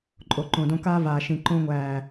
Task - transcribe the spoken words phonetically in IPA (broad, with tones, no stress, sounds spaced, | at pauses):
ǃʼ o˨ ǃ õ˨ d õ˧ k aː˦ v aː˨ ʃ ĩ˨ ǃ õ˧ ŋʷ æː˨